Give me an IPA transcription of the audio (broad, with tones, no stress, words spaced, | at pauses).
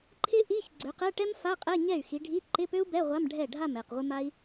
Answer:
ǃʰɪ˥ ʔi˧˥˧ç ɡ͡ǀø˨˦qɛ˧˥˧ʈɛ˥m fa˧˥˧qʼɛ˧˥˧ ɲɛ˥˩y̯xi˨˦ɖʱi˧˥˧ ǃɪ˧˥˧pø˥u̯bɛ˧˥˧ ʁʷa˧˥˧mɖʱɛ˥˩ ɖʱa˥˩m ɛ˥˩qʁʷɪ˥ma˥i̯